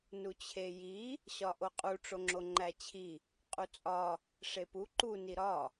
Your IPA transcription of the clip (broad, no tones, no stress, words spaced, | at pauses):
nut͡ɕʰeji | ɕɒʔoqʼu ʈ͡ʂoŋ͡ǁoŋ͡ǃæt͡ɕʰi | qʼut͡sʼɒ | ʂepu ǃu niɾɒ